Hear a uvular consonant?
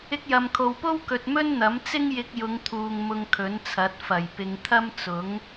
no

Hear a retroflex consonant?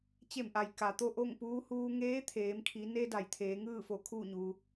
no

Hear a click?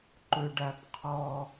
yes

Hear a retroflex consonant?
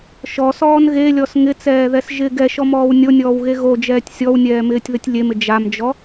no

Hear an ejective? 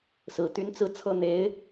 no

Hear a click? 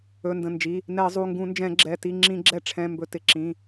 yes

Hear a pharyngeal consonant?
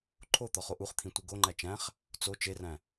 no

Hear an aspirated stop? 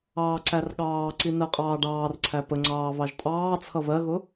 yes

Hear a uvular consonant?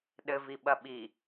no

